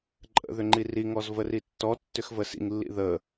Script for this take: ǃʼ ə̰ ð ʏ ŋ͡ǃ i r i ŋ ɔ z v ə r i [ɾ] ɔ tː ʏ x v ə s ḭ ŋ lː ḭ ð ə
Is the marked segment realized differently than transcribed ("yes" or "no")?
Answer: yes